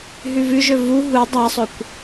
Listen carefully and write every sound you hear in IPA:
ɦ ʉ v ʉ ʒ ɵ v u ɦ u dˤ a sˤ ɵ kʷ

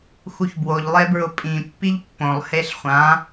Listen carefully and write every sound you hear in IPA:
x u ç b w o ʎ lˠ e b ɹ ʊ pʼ ĩ pː i ʎ pː õ lˠ h e ɬ χʷ ã

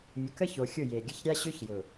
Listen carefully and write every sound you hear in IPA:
mʲ ʊ˨ k ə˦ ç o˨ xʲ ʊ˦˨ j e˨ ɡʲ ə˦ ç ɾʲ a˦ ɕ ø˦ ç j ʊ˨

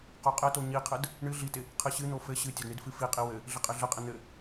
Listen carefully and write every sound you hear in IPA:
q o qʼ ɘ t o ɲ i qʰ ɘ d | ɳ ɨ ɮ i t ɪ | qʰ ɨ ɕ ɨ n̪ o f ɘ ɕ ɨ tʲ ɘ d ɳ i d f ɨ f i qʼ i w ɘ | ɮ ɪ qʼ ɘ ɮ ɘ qʼ ɪ n̪ ɘ

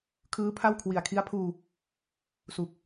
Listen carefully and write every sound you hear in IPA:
kʰ ɯː˦˥ pʰ a˥˩ w kʰ w i˨˩ a̯ kʰ i˦˥ a̯ pʰ uː˧ | s u˨˩ k̚

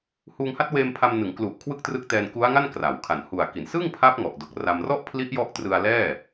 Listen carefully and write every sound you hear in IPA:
h uː˧ ŋ h a˦˥ t̚ w eː˧ m pʰ a˧ m n ɯ˩˦ ŋ k l u˨˩ ʔ kʰ w ɯ˥˩ k̚ t r ɯ˦˥ k̚ t ɛː˧ n k u˦˥ a̯ ŋ a˥˩ n k r a˩˦ w kʰ a˨˩ n h u˨˩ a̯ k i˩˦ n s ɯ˥˩ ŋ pʰ a˦˥ p̚ ŋ ɔ˨˩ ʔ d o˨˩ k̚ r a˧ m r ɔ˥˩ ʔ pʰ l i˦˥ ʔ j ɔ˦˥ ʔ t r ɯ˧ a̯ l ɛː˥˩

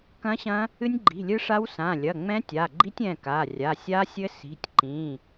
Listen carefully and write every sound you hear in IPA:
k ɐ̃˦˥ ɕ ɐ̃˦˥ | ɨ˦˥ nʲ ɡ͡ǃ i̤˩˧˩ lʲ ɨ˦˥ ʂ a˦˥ w s ã˩˧˩ lʲ ɐ˩˧˩ ŋ͡m ɛ̃˦˥ tʲ a˩˧˩ ɡ͡ǃ i˦˥ tʲ ɛ̃˩˧˩ k a˩˧˩ rʲ a˩˧˩ sʲ a˦˥ sʲ ɘ˦˥ s i̤˩˧˩ tʲ ǃ ĩ˩˧˩

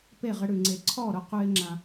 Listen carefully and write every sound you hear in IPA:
p e˦˨ ʁ ə˧ ɽ ʉ˨ ŋ͡ǀ e˨ ǀʰ ɔ˦˨ ɾ ʊ˧ q ʉ˦ ɪ̯ ŋ͡ǁ ã˧

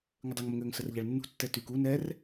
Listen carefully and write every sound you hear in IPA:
ŋ ə dˤ i ŋ m ə ŋ øː ŋ s ə r ʎ a ɭ nː ṳ tː ɛ t y k u n ɛ r

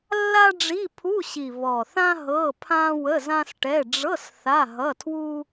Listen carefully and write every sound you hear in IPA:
lː a˥ ɖ͡ʐ i˧˥˧ pʰ u˧˥˧ ɕ i˨˩ β ɔ˨˩ θ ã˥ ɦ ɤ˧˥˧ pʰ ã˥ w ə˧˥˧ z ã˥ s ʈ ɛ˧˥˧ ɖ͡ʐ ɤ˧˥˧ s θ a˧˥˧ ɦ ʌ˧˥˧ tʰ w u˥

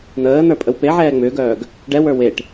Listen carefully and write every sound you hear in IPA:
n̪ əː n̪ ə˞ pʼ ə w p e ʕ ɛː ŋ͡m ʏː ɡ œː ɡ | ɖ ɛ w ə˞ w e ʈ

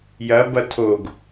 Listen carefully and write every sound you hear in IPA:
j ɐ b ɐ tʰ o ɡ

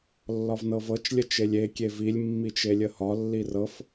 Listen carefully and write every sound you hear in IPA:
lː ɒ v n ɤ v ɤ t͡ʃ lʲ ə t͡ʃ e lʲ e kʲ e v i lʲ mː i t͡ʃ e lʲ ə h ɒ lː i r ɤ f

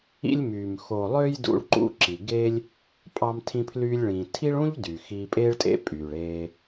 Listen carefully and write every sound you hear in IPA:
ḭ˧ lʲ m yː˩ m x o˩ lˠ ø˧ j d ṵ˧ ɭ ǃ ṵ˧ ǁ i˩ ɡ e˥ lʲ | pʼ ɑ˧ m tʰ ĩ˧ pʰ l y˧ lʲ ɭ ĩː˩ tʰ i˥ ɭ ũ˥ ʎ d yː˩ x iː˧ pʼ eː˥ ɭ tʼ ḛ˥ pʼ yː˩ ɭ eː˧

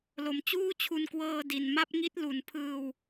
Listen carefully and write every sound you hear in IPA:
l o˩˦ m t͡ɕ uː˥˩ t͡ɕʰ u˧ n k w ɤː˧ d i˨˩ n m a˥˩ p̚ ŋ i˦˥ t̚ l u˩˦ n pʰ ɯː˧ w

